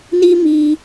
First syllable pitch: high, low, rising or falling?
high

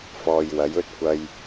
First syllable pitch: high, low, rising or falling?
low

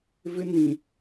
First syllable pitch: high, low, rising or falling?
high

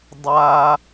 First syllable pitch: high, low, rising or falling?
high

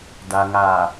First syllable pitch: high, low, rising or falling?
low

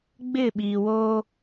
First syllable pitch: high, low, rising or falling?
falling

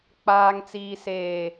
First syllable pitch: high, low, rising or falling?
low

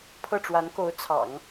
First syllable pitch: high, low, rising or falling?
falling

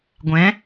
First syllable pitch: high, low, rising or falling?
rising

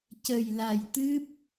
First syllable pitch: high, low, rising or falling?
low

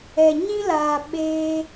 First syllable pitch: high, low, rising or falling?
low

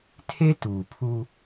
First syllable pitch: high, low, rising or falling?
high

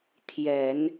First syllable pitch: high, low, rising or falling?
low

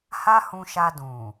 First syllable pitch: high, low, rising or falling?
high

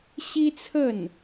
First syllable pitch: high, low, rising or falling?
high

